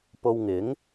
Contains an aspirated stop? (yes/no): no